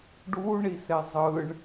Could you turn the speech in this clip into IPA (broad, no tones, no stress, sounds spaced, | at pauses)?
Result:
ɖ u ɳ i s ɛ zˤ ɯ ɳ